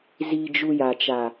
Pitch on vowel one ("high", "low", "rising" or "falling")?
low